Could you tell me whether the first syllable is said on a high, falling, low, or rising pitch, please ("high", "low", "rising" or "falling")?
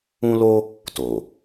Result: high